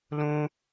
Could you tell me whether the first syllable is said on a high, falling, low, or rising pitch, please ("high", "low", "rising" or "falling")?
high